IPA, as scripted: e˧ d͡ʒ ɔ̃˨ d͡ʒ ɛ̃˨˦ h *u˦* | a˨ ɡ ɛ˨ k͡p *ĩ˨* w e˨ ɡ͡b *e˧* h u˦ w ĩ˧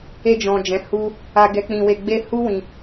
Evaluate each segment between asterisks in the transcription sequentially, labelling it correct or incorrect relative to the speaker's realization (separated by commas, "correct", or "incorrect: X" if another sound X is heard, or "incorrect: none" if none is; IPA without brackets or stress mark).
incorrect: u˧, correct, correct